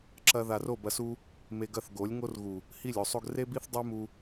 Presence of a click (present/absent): present